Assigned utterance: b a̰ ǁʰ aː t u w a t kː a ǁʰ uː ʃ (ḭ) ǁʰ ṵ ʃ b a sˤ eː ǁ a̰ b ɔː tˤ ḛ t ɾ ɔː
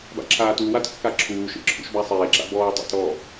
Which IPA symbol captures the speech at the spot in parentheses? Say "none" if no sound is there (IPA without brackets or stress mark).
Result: ḛ